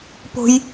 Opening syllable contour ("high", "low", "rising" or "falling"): high